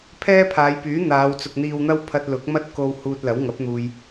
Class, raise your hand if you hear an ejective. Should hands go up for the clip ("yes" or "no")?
no